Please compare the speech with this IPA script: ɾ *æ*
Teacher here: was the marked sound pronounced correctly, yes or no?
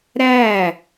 yes